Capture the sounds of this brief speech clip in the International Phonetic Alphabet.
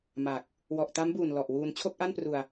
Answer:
ma˨˩k̚ | wɔ˨˩ʔta˦˥mbuː˨˩n lɔ˨˩ʔwuː˧n t͡ɕʰo˥˩k̚ʔa˥˩npru˧a̯

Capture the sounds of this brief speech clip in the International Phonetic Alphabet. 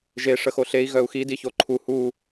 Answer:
ʒe ʂəxoɬei̯ ɣœu̯xi diçoǃʰu hu

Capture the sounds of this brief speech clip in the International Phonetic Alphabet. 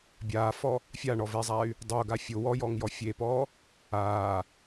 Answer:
bʲaːfɔ | fʲaɳɔvezˤay̯ | dˤʊːɡa fʲʊ wɔjɔŋjɔ fʲeːpɔː | aː

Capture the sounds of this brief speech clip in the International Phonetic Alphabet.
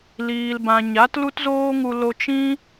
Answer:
liː˨lbã˨ ɲa˨˦tlu˦tzoː˦ŋu˧ lo˧t͡ʃĩ˦

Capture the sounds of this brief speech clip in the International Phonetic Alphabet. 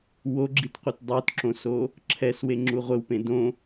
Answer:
woɡ͡ǁitqʷet dˤotǁõso | ǁʰɛsweŋ͡ǁu ʁʷɘwpẽ dõ

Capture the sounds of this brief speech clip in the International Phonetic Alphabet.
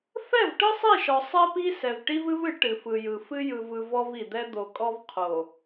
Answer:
fɛ˦˨vʈɯ˦sˤi˦˨ʃɔ˨ sˤɛ˦pi˦ sɛ˨vʈi˦vɨ˦vɨ˨˦ ʈɨ˨fɯ˨jɯ˨fɨ˦ jɯ˨vɯ˨ vɔ˦vi˨d̪ɛ˦ d̪o˨kʼɔ˦vqʰo˨

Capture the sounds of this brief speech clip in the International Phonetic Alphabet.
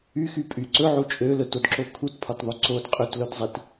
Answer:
yxy pʼy ǀɵʕu t͡ʃʼø lɵtodǁo kʰutpʰɒtðˤo ǀod qʼɵtlɵdzˤit

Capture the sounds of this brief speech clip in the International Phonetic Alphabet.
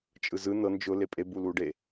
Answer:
t͡ʃʼɯzɯ nɤ nd͡ʒʊ lepʼe buluɖe

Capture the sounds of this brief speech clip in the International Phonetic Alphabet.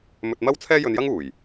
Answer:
mɵ˧t̚mɐ˥w t͡sʰɛː˥jɵ˧njɐ˥ŋuː˨˩j

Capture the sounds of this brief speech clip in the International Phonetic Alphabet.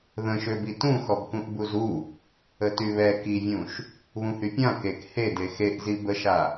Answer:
ðə̃ʃøbi tũxɔbkũʔ buzu | ətyβɛ kivʲũʃ | βũhypʲã kek hede xeʔzi bəʃa

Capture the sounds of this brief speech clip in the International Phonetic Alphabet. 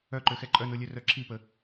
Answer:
œǃøxɛ ǃʼœnolʲœrœ ǁʰipə

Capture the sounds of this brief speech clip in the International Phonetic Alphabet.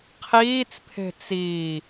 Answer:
qʰiːt͡spʰe̤ t͡siː

